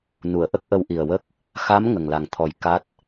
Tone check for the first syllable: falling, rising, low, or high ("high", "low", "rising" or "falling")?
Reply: low